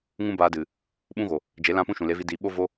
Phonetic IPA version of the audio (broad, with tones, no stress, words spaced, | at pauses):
ŋũ˦baː˧dɨ˨ | ɓũ˦ɣo˨ | d͡ʒe˨˦lã˦pũ˦ ʃũ˨le˧vi˦diː˨˦ ɓo˦vo˦